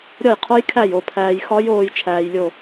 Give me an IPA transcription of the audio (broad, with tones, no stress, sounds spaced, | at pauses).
ɾʲ ɒ˥˨ j qʰ o˦˥ j kʰ æ˥˨ j o˥˨ pʰ æː˧ j x ɒ˦˥ j oː˧ j t͡ʃʰ æː˧ j lʲ o˥˨